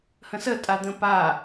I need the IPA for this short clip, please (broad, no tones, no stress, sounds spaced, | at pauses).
h ə̃ s ə tʼ a d̪ ə̃ p a